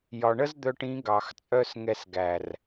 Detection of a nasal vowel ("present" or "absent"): present